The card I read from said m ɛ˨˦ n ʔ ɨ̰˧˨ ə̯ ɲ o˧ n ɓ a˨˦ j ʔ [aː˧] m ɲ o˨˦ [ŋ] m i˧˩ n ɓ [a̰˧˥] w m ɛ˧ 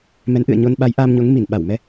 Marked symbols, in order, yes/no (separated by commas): yes, yes, no